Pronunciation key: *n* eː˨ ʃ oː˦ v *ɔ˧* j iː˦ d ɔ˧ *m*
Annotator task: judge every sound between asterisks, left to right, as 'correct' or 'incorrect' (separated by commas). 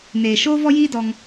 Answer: correct, incorrect, incorrect